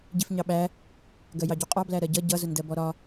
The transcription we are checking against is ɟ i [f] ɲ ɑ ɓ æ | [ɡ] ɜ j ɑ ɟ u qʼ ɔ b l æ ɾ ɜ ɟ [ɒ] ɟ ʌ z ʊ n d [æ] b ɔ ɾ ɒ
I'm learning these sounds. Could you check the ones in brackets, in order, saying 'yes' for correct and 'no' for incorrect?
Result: yes, yes, no, no

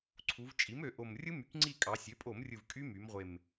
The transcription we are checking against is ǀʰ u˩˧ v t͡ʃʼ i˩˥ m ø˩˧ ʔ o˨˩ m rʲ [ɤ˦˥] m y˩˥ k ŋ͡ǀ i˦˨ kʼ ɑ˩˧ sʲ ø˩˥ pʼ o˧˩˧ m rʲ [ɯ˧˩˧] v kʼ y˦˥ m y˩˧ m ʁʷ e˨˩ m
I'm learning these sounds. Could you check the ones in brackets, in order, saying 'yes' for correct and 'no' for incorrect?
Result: no, no

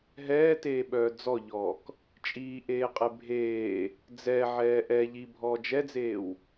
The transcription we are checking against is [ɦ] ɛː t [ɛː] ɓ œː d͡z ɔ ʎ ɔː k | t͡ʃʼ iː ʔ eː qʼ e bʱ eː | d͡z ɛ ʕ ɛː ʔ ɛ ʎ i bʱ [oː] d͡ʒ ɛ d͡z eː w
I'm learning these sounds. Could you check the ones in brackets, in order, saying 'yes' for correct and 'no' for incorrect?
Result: yes, no, no

